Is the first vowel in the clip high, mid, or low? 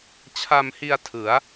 low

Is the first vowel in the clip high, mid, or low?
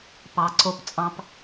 low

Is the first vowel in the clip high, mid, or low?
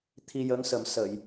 high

